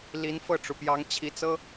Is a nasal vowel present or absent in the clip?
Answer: absent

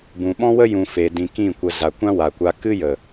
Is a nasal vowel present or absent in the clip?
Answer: present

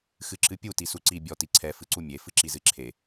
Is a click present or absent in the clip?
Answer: present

